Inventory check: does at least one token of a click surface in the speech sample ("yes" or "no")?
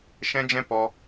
no